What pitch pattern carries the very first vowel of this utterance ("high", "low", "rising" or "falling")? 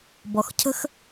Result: low